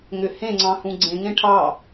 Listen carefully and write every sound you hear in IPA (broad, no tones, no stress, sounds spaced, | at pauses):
ŋ ʏ h ẽ ŋ͡ǀ ɑ̃ h ũ ɡ͡ǀ ẽ ŋ ẽ ʈʰ ɑ